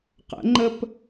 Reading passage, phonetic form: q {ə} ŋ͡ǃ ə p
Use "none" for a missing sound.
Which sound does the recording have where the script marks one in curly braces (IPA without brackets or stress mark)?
ə̰